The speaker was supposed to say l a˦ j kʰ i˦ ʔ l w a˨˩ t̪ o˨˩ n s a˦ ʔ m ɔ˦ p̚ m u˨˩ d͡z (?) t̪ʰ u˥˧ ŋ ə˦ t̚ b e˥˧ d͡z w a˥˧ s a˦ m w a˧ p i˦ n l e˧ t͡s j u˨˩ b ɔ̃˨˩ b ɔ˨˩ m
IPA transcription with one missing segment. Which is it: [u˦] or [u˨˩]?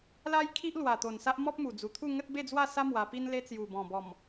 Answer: u˨˩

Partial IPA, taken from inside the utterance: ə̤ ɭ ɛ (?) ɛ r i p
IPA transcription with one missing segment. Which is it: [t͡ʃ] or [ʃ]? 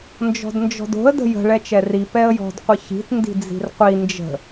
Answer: t͡ʃ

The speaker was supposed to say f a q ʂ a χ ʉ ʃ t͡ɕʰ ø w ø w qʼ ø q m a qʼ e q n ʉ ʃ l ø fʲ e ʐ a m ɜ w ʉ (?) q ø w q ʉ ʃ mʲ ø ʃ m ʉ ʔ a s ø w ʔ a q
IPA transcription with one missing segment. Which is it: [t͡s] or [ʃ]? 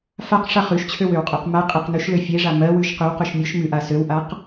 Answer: ʃ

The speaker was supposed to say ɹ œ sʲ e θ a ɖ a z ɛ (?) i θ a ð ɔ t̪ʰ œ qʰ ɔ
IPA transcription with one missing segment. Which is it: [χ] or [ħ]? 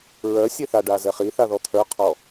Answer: χ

